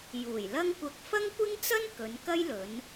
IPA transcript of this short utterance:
j uː˨˩ j l ɐ˥ ŋ kʷ ɐ˧ k̚ f ɐ˥ ŋ kʷ ɪ˥ ŋ t͡s ɐ˥ n k ɵ˨˧ n k ɐ˥ j l ɵ˨˧ n

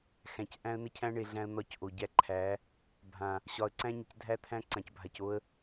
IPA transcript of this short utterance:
x æ̃˨ c ʔ æ̃˦ ə̯ n ə˦ cʰ æ̃˦ ɳ e˨ ɮ æ̃˦ ə̯ n̪ ɒ˦˨ c ʔ o˨ ɟ æ˦ ǃʰ æ˨˦ | bʱ ã˨ | ɕ ɒ˨ ə̯ ǀ æ̃˦ ɲ ə˨ c dʱ æ˦ t̪ʰ æ̃˦ ǀ ã˨ c bʱ a˨ c o˦ ə̯

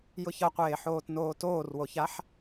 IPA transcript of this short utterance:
j ʊ ç ʌ qʷ eː ħ oː t n oː t oː r w o ç a ħ

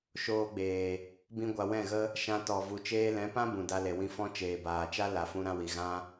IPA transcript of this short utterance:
ʃ oː˧ ɡ͡b eː˨ | b ĩ˧ ɡʷ a˨ w ɛ̃˦˨ ɣ ə˦ | ʃ ã˧ t ɔ˨ v u˨ t͡ʃ eː˧ l ɛ̃˨˦ p ã˦ b ũ˨ d a˧ l e˨ w ĩ˧ f ɔ̃˦ t͡ʃ eː˨ b aː˨ t͡ʃ a˦ l a˨ f ũ˧ ɾ ã˧ w i˨ ɣ ã˦

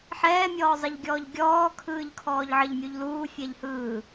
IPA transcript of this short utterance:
ħ ɛː mʲ ɔː zˤ ə ʎ ɡʲ ɔː ʎ ɡʲ ɔː kʰ ɯː ʎ kʰ ɔː ʎ ʕ ə ʎ mʲ u ʎ l uː fʲ ɛ ʎ h ɯː

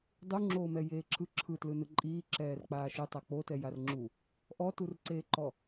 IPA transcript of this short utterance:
dˤ u ŋ͡ǁ oː m ɛ j eː ǁʰ ɯ ǁʰ ɯ t l ɯ n ɯ ǃʼ iː ǁ ɛː r k͡p aː ʃ ɯ tˤ a k͡p o t ɛ j a r ŋ͡ǁ u | ʔ ɔ t u r ǀ eː ǃ ɔ

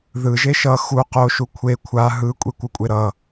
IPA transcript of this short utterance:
ð ɯ ʒ e ʃ ʌ x u q o ʃ u kʷʰ e kʷʰ a ɦ ɯ kʷʼ i kʷ ɯ kʷʼ e ɾ ʌ

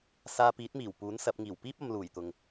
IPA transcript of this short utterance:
s aː˧ p iː˨˥ t̚ m iː˨˩ w p uː˨˥ n s ɐ˨˥ p̚ ŋ iː˨˩ w p iː˥ p̚ ɐ˨˧ m l uː˨˩ j t̪ ʊ˨ ŋ

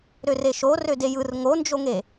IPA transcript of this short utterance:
ɾ ø r e ʃ o r ø d e j ɯ r ŋ o n d͡ʒ o ŋ e

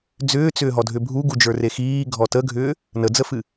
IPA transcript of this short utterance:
d͡z ʏː t͡s ʏː ɦ ɔ dʱ ʏ bʱ u ɡ u d͡ʒ ə˞ r e x iː ɡʱ ɔ t ə ɡʱ ʏː | n ə d͡z ə f ɨ

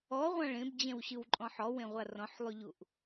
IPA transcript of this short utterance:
ɔ ʁʷ ã ɭ ẽ b d͡ʑ ɛ̃ w ɕ ɯ w ǃʼ ɔ̃ ħ ɔ w ẽ ʁʷ a r ɔ̃ ħ lˠ y ʎ u ʔ

